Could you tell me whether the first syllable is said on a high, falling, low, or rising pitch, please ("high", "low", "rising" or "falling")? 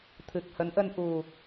low